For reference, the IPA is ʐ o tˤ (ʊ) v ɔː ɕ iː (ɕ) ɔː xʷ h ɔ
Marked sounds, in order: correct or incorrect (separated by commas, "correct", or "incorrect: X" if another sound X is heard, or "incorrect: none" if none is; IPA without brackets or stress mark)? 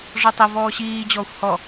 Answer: correct, incorrect: d͡ʑ